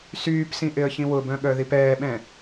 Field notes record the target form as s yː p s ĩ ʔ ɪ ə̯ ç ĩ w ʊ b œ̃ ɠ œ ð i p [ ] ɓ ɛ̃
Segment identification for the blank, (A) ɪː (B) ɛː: B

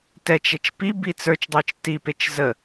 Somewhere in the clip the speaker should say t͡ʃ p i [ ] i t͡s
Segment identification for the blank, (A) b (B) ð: A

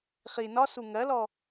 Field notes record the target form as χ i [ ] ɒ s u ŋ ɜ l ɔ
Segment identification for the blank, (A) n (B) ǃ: A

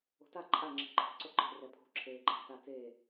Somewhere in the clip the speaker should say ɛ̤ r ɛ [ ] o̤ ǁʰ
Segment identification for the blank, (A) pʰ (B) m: A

